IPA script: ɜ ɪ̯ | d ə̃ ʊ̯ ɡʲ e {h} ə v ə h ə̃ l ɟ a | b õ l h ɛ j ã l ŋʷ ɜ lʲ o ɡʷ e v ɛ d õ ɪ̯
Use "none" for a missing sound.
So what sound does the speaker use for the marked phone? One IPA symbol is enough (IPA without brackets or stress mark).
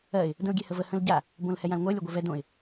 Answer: h